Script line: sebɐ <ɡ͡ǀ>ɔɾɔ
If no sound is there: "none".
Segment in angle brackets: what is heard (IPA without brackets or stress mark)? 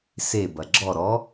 ɡ͡ǁ